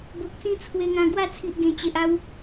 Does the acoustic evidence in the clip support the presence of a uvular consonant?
no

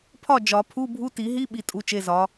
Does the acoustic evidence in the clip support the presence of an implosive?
yes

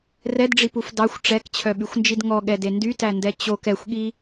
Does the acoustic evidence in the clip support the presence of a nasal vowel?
no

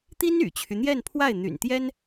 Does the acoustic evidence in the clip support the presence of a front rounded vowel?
yes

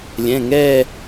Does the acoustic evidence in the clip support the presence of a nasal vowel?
yes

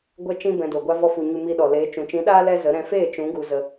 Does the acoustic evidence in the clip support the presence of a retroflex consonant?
no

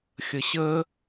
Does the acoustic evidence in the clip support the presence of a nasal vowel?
no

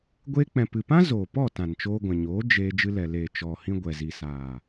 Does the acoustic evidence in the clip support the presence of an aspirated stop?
no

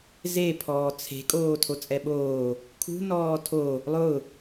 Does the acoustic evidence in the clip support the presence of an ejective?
yes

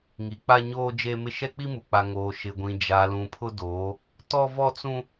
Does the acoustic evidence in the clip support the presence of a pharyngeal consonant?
no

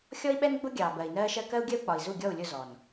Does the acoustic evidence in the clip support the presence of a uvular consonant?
no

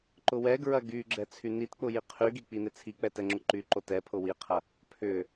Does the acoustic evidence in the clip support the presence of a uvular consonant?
yes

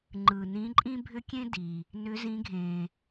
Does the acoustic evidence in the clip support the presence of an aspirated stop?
no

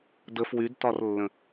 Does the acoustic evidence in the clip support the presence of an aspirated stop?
no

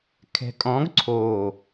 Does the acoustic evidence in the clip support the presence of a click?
yes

